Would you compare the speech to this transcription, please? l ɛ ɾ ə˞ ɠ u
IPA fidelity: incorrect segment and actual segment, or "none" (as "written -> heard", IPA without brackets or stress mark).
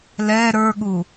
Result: none